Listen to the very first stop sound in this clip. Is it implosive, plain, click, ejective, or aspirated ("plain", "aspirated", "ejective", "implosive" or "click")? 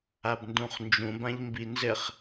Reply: plain